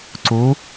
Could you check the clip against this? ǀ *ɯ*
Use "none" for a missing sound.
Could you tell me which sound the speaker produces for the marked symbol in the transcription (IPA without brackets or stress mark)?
u